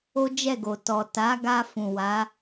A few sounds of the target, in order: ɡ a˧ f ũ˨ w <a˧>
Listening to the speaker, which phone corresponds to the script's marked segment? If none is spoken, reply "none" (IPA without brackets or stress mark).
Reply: a˨˦